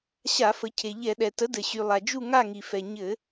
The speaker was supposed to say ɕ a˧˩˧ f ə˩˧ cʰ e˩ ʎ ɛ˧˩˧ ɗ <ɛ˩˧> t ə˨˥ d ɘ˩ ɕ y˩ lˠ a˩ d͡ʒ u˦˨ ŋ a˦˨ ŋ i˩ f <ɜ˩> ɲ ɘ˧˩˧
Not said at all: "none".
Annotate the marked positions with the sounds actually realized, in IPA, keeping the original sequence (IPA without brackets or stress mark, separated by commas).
ɛ˩, ɛ˩